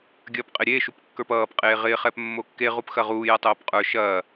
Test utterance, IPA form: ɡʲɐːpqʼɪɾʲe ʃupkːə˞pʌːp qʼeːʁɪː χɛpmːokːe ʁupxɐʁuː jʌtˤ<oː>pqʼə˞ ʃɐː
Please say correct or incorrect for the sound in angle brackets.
correct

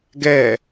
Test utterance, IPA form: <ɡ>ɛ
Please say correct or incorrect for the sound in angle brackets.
correct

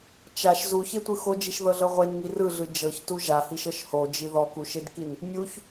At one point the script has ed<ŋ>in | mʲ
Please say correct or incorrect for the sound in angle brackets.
incorrect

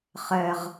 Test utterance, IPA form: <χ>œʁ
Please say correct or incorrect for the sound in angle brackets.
correct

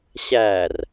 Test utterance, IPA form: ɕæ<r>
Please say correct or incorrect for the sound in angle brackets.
correct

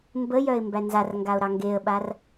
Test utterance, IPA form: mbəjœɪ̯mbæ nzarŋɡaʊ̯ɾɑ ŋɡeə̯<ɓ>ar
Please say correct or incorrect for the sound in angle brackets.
correct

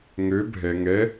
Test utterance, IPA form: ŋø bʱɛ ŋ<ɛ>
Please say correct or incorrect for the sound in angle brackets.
correct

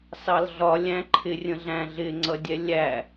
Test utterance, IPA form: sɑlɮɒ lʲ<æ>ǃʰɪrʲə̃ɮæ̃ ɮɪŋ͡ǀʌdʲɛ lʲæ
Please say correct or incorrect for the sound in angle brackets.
incorrect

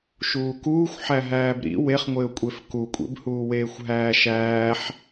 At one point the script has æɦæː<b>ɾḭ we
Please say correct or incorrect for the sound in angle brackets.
correct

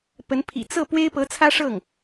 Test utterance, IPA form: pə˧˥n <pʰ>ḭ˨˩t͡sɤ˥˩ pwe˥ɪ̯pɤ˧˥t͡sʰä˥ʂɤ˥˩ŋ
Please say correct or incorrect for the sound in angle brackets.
correct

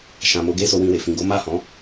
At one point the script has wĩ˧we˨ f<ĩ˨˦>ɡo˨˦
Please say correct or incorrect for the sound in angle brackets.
incorrect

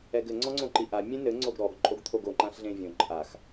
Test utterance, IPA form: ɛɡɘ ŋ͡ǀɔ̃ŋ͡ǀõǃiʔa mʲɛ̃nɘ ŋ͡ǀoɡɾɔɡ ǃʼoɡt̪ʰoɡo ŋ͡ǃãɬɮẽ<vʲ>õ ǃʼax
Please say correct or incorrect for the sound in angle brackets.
correct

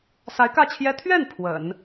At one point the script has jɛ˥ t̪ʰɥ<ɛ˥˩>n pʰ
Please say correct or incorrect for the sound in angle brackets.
correct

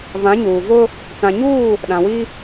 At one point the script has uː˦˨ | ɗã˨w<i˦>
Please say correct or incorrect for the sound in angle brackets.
correct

